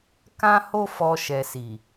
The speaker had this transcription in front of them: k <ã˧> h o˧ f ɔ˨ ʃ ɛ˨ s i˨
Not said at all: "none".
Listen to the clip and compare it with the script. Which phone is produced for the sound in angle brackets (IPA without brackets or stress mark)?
ã˧